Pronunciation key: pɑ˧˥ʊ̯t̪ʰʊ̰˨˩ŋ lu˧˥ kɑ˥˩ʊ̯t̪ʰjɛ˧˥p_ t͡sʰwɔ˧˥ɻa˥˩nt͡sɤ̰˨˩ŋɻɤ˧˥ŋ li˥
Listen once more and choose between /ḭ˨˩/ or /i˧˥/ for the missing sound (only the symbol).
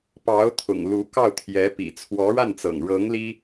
ḭ˨˩